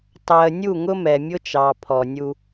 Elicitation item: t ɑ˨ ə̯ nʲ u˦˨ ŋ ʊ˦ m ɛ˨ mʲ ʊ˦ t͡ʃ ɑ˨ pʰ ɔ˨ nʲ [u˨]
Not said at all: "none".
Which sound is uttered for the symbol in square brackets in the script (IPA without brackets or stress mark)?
u˦